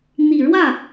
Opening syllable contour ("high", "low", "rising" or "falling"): low